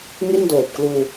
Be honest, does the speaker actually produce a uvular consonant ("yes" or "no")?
no